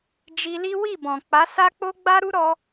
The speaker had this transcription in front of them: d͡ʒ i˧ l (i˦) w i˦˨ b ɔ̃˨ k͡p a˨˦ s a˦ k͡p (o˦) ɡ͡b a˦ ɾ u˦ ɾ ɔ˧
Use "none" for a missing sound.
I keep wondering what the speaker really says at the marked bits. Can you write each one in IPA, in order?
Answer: i˦, o˦

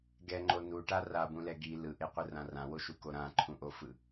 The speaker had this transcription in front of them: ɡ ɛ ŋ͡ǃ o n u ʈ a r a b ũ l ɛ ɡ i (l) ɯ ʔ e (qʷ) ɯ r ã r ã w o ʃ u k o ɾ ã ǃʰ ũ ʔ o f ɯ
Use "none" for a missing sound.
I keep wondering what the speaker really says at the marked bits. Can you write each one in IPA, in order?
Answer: l, qʷ

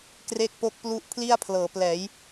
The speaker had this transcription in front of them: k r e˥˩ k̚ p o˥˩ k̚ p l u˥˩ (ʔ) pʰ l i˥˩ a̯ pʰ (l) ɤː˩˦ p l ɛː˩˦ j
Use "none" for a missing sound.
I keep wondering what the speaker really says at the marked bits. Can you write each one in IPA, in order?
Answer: ʔ, l

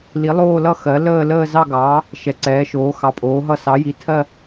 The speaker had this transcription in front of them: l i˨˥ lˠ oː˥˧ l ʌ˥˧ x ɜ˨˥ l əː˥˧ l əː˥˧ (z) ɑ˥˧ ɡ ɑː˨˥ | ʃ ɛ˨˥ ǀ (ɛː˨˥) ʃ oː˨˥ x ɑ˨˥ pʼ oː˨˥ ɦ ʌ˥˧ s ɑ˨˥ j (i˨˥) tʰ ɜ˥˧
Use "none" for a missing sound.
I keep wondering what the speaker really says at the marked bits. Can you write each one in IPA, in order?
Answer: z, ɛː˨˥, i˨˥

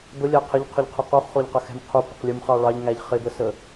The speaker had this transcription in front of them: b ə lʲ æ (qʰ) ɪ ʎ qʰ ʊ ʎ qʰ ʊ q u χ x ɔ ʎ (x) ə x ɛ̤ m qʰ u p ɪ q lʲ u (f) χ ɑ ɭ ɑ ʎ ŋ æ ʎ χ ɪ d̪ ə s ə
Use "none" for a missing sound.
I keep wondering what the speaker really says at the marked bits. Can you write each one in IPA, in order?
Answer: qʰ, q, m

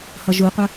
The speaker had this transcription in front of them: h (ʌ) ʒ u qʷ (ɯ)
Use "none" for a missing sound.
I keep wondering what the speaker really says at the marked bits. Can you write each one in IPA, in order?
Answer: ʌ, ə

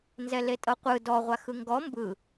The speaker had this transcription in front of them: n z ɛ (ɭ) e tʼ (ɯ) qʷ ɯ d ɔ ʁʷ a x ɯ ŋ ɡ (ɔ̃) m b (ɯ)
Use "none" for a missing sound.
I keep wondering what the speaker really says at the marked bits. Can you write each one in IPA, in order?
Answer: l, ɤ, ɔ, ɯ

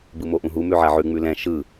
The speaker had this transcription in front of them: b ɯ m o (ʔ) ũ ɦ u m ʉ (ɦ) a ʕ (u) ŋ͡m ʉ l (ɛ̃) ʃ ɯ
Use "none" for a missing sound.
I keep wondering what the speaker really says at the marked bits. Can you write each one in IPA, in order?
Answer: ʔ, ʕ, ʉ, ɛ̃

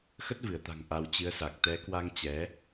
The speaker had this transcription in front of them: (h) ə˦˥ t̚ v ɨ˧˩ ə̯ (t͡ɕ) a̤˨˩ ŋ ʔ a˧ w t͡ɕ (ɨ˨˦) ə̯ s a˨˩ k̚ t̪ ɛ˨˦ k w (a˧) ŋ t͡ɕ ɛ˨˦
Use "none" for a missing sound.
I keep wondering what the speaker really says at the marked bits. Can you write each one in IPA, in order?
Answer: x, t̪, ɨ˨˦, a˧

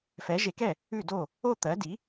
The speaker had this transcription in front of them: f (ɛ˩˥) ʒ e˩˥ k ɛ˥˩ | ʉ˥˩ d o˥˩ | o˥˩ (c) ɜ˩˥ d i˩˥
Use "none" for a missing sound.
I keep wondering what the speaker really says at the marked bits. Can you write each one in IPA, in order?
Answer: ɛ˩˥, t̪

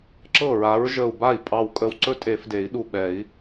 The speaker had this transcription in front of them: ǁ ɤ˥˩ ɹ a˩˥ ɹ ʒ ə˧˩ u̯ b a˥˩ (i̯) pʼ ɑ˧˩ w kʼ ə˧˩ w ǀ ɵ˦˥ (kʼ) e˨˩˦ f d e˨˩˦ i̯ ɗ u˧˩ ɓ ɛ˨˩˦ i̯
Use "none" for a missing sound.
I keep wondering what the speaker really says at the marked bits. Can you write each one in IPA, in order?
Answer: i̯, tʼ

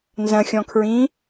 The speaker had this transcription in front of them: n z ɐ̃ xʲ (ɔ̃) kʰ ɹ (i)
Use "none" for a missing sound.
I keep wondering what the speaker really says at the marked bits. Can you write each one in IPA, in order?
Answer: ɔ̃, ĩ

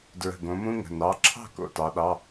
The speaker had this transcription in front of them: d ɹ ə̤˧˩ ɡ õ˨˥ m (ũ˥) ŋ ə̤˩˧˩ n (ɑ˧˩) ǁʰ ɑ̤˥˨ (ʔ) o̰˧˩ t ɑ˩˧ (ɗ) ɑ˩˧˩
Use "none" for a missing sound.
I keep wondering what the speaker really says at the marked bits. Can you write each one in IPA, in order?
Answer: ũ˥, ɑ˩˧˩, k, ɗ

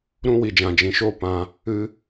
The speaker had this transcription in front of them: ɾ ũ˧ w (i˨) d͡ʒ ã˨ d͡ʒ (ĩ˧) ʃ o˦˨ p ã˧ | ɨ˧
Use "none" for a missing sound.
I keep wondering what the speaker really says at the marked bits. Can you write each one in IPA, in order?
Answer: i˨, ĩ˨

